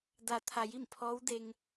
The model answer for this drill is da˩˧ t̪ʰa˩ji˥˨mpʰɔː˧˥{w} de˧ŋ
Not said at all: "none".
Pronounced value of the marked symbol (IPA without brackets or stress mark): w